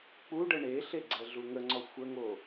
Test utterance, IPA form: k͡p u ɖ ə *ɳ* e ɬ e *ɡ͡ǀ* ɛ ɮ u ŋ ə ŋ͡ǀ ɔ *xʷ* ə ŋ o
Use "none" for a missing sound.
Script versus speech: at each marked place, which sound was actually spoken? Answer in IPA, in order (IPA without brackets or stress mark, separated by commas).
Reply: ɳ, ɡ͡ǀ, xʷ